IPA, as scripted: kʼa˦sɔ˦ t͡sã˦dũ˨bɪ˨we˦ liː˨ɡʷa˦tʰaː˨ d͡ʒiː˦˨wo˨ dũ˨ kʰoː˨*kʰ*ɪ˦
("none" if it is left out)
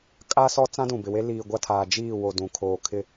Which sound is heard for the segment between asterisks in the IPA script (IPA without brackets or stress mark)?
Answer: kʰ